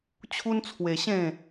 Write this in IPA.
t͡ɕʰ u˦ n t͡sʰ w e˧ ɕ ẽ˥˧

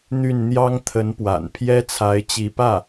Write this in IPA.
n̪ y˥˩ n n̪ j ɑ˥ ŋ t̪ʰ ə˧˥ n p w a̰˨˩ n pʰ j ɛ˥ t͡sʰ a˧˥ ɪ̯ t͡ɕ i˧˥ p ä˥˩

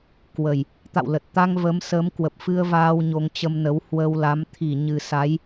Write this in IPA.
k w ə˨˩ j | t̪ a̰˧˨ w l ə˨˩ t̚ t̪ a˧ ŋ v ə˨˦ m s ə˨˦ m k w ə˨˩ p̚ f ɨ˧ ə̯ v aː˧ w ɲ o˧ ŋ t͡ɕ ə˧ m n ə˨˦ w h w ə˧ w l a˨˦ m t̪ʰ i˧˩ ɲ ɨ˨˩ s a˨˦ j

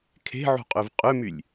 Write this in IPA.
kʰ e̤ ʕ ṳ qʼ ø v qʼ ø m y lʲ

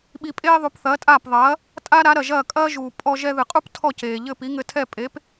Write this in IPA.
ɓ i˧ pʼ eː˥ ðˤ u˩˥ p θ ɐː˩˥ tʼ aː˥˩ p ðˤ ɐː˩˥ | tʼ a˥ ɾ a˩˥ ɾ ɐ˩ ʒ ɐː˥˩ kʼ ɐː˥ ʒ uː˩ pʼ ɔ˧ ʒ ɛ˧ ð ɨ˩ qʼ u˥ p tʰ ɔ˥˩ c eː˩ ʎ ɘ˥˩ p i˩˥ ŋ ɘ˧ tʰ ɛ˥˩ pʼ e˩˥ p

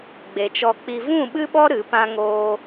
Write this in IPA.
ɡ͡b e˨ t͡ʃ ɔ˧ k͡p i˧ v ũ˦˨ ɓ ɨ˦ ɓ ɔ˦ ɾ ɨ˨˦ p ã˦ ŋ oː˦

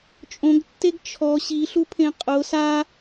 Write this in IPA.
t͡ʃʼ õ ɡ tː e ɡ t͡ʃʰ ɔ ɕ i ɬ u pʰ ẽ qʼ ʊ s a

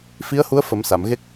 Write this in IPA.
f i˧˥ ə̯ h u˧˥ ə̯ f ə˨˩˦ m s a˨˩˨ m ɣ e˦˥ k̚

